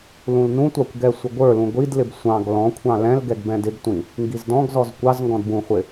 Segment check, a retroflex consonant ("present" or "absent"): absent